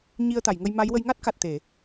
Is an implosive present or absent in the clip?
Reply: absent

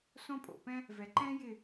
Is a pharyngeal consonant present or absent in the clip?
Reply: absent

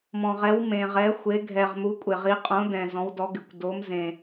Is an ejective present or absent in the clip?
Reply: present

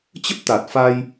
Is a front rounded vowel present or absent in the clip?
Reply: absent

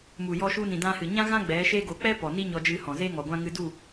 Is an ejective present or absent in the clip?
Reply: absent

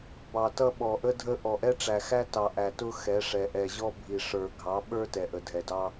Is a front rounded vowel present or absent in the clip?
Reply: absent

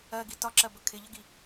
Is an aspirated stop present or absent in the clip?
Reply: present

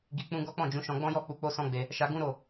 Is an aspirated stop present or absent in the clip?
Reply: absent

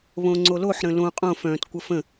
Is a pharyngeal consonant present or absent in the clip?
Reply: present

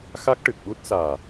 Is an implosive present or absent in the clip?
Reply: present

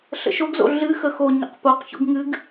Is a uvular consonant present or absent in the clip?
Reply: present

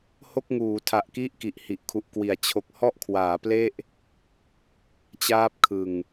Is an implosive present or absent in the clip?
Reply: absent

